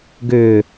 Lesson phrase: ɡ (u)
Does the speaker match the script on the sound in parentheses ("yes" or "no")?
no